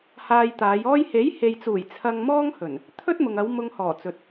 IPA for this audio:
h aː˧ j t̪ aː˨˧ j ɔː˥ j h e˨˥ j h e˨ j t͡s uː˨˩ j t͡sʰ ɐ˧ ŋ m ɔː˥ ŋ h ɵ˨˩ n | t̪ʰ ɵ˥ t̚ m ʊ˨ ŋ ɐ˨˧ w m ʊ˧ ŋ h ɔː˨˩ t͡s ɵ˨ t̚

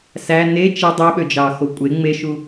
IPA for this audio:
s æ n e t͡ʃ e dˤ ø ɓ ø d͡ʒ ɑ x o kʷʼ e ŋ͡m e ʃ u

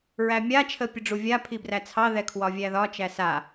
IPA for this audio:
ɹ æ mʲ a t͡ʃʰ ə pʲ ə ɖ͡ʐ u vʲ a pʰ i b r æ t͡sʰ ɑ ð ɛ kʰ w ɒ vʲ æ ð ɒ t͡ʃ æ s a

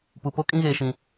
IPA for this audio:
p u˨ p o˦ kʼ ĩ˦ ɣ eː˨ ʃ ĩ˨

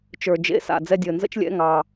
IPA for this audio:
t͡ʃ ə˞˨˩ d͡ʒ ḛ˧˥˧ s a̰˨˩ d͡z ɛ˦˨ dʲ əː˨˩ n z ə̰˥ t͡ʃ lʲ ɛ̰˧˥˧ ŋ ɑ˨˩

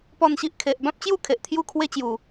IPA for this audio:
p ɔ˥˧ n ɕ i˦ ʔ kʰ e˨ ʔ b ã˦ p̚ t͡ɕ j u˥˧ kʰ e˨ ʔ t̪ʰ j u˥˧ kʰ w e˦ t͡ɕ j u˨˩

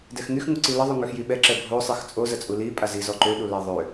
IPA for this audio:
d ɛ x ŋ y x ŋ u ǀ i l ə ðˤ y ŋ ø x j i ɓ ɛ ǁ ɛ bʱ o sˤ i x t͡sʼ o z ə t͡sʼ u l i pʼ a z i z ɔ ǃ ø ɗ u l a ðˤ ø

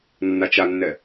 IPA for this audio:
nː a t͡ʃ a nː ɛ

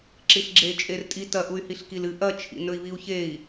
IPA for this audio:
ǁ i ɬ ɡ͡ǁ e t͡ʃʼ e r tʼ i t ɐ ʔ u y̯ h i ɬ k i l ɨ ʔ ɐ t͡ʃʰ ḭ n ɵ i̯ β i u̯ ç e i̯

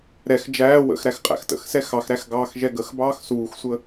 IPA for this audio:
ɾ ɛ x d͡ʒ æː w ə̰ x ɾ æ x qʼ æ̰ x t ə̰ x s ɛ x ɑ x ɾ æ x ɡ ɑː x ʒ ɛ ɡ ə x b ɑː x s uː x sʷ ə

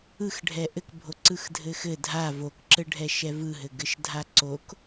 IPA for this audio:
ɯ x ɖʱ ɛ ʔ ɘ k bʱ o ǀ ɯ x dʱ ɘ x ɘ dʱ a v o k ǁ ɘ ɖʱ ɛ ʃ ɛ v ɯ ɦ ɘ ɡ ɘ ʃ dʱ a ǀ o k

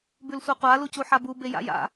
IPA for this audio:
b ʉ l sʷ a qʷ a l u c u ħ a b u b e j a̰ j a̰

